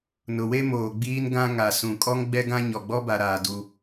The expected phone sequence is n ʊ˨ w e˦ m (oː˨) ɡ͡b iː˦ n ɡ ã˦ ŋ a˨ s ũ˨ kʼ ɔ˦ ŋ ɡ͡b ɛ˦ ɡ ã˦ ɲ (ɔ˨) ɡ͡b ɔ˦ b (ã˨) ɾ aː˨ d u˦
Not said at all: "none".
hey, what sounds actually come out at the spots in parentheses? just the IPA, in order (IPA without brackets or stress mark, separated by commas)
oː˨, ɔ˨, a˨